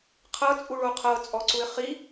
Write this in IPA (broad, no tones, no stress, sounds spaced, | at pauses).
qʰ ɤ t͡sʼ u ɭ o qʰ ɤ t͡sʼ ɔ ǀ u ɪ̯ χ i